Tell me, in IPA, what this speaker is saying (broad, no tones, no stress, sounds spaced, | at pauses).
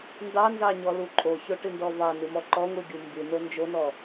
n d ɑ n z ɑ ɲ ɔ l u ǃʼ o ç o ʈ ɨ n d ɔ v ɑ n ɨ m ɔ ǃ ɔ ŋʷ ɨ ɡʲ u m b ɨ n o n d͡ʒ o n ɔ